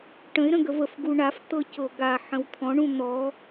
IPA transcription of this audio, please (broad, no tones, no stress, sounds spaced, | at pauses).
ʈ ə̃ ɪ̯ ɾ ə̃ ɡ ə v ə f ɡ u ɳ a f t̪ ɤ c ɤ ɡ a ħ ə̃ w t̪ʰ ɔ̃ ɳ ũ n̪ ɔ